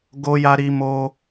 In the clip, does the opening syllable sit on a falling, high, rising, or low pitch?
high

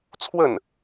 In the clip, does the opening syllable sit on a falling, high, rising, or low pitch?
falling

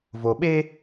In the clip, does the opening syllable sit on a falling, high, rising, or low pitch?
low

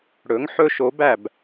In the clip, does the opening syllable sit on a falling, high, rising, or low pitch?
rising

